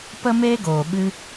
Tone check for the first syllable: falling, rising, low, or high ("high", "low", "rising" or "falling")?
high